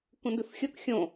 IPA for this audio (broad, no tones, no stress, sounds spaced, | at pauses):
k ũ n d ʉ f xʲ o k xʲ õ